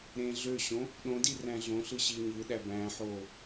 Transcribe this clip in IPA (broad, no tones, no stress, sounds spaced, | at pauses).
ɾ ẽ ɮ ø ɕ õ | ɗ õ d i r æ̃ ɮ õ ɬ ɯ ɕ i ɲ ɯ ɗ æ b æ̃ ħ o